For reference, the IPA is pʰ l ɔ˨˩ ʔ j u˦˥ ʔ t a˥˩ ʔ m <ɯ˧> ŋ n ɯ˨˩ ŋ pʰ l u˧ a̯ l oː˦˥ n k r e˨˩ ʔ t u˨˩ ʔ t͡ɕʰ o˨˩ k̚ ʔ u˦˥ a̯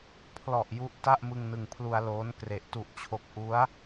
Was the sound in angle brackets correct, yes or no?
yes